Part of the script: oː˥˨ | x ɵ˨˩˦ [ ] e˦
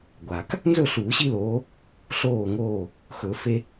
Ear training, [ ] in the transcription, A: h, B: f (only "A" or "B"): B